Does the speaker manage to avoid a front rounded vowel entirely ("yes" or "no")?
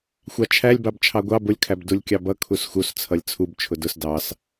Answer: yes